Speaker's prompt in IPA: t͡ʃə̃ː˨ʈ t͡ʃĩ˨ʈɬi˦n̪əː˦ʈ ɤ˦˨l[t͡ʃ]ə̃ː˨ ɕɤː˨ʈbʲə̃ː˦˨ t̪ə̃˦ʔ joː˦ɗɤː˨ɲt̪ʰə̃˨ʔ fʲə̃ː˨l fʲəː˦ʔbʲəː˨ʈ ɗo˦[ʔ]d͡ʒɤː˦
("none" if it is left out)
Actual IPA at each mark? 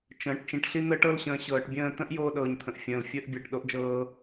ɕ, ʔ

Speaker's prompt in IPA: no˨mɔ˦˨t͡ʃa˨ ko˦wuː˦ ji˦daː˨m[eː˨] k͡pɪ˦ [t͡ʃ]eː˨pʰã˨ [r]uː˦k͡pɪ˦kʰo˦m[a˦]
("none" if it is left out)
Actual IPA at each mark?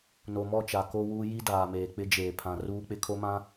eː˨, d͡ʒ, r, ã˦

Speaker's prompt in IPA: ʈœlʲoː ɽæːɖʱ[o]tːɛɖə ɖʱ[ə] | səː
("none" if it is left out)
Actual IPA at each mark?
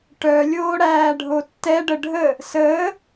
o, ə

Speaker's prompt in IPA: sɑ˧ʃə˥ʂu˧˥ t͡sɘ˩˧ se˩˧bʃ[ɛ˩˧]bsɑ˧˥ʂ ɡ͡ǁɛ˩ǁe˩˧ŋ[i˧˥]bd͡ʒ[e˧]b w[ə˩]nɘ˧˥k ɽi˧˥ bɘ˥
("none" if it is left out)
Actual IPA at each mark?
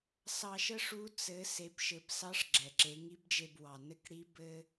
ɘ˩˧, i˧˥, e˧, ɑ˩

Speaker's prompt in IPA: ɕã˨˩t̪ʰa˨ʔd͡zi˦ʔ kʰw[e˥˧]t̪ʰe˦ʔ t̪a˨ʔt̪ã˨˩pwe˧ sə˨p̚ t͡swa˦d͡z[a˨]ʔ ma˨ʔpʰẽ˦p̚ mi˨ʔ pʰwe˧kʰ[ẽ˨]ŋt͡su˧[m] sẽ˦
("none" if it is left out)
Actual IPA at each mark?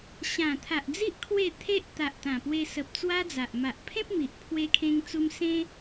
e˥˧, a˨, ẽ˧, m

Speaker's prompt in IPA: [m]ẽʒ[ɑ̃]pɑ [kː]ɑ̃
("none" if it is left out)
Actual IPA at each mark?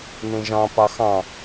n, ɑ̃, x

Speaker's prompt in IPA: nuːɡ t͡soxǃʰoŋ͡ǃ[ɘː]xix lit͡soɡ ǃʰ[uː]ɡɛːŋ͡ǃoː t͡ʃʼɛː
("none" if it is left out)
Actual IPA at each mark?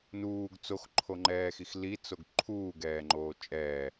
ɛː, uː

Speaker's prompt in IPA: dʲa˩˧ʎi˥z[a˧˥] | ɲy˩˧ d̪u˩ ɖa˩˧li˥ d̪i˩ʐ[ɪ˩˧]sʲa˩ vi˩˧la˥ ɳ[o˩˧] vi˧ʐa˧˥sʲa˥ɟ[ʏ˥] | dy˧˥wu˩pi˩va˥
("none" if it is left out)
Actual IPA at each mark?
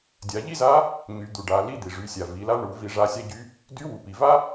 a˧˥, y˩˧, u˩˧, y˥

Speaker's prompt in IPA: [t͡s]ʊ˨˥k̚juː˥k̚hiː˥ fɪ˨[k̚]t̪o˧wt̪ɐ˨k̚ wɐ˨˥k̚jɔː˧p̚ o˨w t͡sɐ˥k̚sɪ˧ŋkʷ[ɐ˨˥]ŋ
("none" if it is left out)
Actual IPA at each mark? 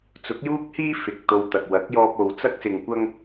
t͡s, k̚, ɐ˥

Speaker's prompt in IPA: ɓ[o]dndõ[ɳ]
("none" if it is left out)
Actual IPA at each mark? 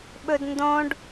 ɵ, ɖ

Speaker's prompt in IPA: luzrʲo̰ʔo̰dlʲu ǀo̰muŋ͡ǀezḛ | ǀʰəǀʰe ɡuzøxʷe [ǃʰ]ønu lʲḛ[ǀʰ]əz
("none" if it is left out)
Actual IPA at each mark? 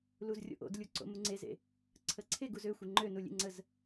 ŋ͡ǃ, ŋ͡ǀ

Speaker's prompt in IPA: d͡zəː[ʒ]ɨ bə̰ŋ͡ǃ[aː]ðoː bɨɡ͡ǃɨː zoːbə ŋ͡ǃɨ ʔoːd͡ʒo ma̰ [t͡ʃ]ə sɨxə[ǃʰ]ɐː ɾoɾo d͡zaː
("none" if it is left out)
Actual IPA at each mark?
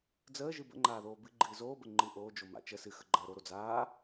ʒ, aː, t͡ʃ, ɡ͡ǃ

